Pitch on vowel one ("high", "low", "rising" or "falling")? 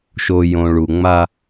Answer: low